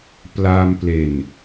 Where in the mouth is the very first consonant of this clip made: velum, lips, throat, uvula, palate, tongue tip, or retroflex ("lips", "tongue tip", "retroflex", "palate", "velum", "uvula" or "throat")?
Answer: lips